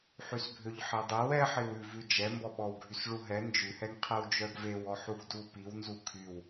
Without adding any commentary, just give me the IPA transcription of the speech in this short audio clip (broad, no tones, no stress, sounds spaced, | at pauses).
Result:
ħ y s bʱ ø ʎ ħ e dˤ e w ɛ ħ i w ʉ v ʉ d͡ʒ ɛ m b ɔ ɓ ɔ w ɡʱ y s ɭ u ɦ ɛ n d͡ʒ ʉ h ɛ ŋ qʰ e w d͡ʒ œ ɡ v e w ɔ ħ u ɡ d u p i w n z u kʰ y w